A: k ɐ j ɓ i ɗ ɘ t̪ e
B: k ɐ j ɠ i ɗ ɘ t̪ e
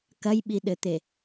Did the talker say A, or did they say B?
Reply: A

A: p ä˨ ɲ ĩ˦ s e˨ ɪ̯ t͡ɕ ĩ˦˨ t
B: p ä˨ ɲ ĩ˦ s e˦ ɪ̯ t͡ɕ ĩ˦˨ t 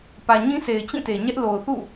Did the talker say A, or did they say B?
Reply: A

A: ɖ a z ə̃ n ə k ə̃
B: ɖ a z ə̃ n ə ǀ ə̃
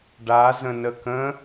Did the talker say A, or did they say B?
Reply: A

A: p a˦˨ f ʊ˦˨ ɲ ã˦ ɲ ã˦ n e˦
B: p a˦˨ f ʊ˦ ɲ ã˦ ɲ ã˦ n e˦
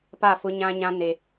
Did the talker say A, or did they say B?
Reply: B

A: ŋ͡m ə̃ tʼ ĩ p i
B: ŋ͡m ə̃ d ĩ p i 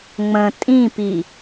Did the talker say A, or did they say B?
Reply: A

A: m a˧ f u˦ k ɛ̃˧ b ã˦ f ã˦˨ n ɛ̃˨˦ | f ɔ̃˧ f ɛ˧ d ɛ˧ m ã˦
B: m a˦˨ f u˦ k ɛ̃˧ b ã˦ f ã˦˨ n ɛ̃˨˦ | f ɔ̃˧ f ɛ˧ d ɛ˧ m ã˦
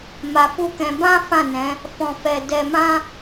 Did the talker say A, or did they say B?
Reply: A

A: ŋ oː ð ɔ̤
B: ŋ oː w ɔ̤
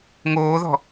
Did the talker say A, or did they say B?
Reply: A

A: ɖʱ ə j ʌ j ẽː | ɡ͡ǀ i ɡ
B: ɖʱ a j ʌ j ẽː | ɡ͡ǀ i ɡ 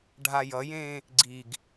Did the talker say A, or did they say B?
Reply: B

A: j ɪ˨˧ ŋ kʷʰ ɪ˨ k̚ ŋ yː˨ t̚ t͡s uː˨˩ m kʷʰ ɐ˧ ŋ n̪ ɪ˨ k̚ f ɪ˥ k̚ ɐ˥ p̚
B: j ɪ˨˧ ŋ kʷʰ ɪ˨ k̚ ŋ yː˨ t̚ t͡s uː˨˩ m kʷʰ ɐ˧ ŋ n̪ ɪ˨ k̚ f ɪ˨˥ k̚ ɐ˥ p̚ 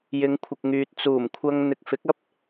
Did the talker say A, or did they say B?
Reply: B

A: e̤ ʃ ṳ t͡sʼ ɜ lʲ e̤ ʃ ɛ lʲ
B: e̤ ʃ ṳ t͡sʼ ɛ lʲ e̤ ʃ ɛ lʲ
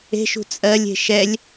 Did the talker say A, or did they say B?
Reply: A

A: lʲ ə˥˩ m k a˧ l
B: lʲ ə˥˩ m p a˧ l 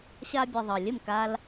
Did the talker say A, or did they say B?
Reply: A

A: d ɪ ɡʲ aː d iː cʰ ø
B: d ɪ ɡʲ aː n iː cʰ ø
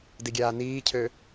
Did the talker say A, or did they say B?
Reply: B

